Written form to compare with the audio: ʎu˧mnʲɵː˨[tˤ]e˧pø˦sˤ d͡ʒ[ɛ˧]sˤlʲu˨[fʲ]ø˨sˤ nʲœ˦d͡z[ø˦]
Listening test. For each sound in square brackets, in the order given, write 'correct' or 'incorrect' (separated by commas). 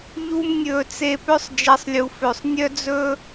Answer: incorrect, correct, incorrect, incorrect